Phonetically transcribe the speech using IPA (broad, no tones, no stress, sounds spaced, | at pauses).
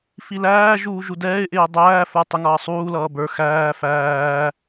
f i l æː ʒ uː ʒ u d ɛː ɪ̯ ʔ ɪː dˤ æː f ə˞ tˤ ɪ ŋ ʌː sˤ uː l ʌː b ə˞ x æː f æː